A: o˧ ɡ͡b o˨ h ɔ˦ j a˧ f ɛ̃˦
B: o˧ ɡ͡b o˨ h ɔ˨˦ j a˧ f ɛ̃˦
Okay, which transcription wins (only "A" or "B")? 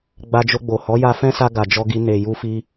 B